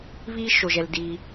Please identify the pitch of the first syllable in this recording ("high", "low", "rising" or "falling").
high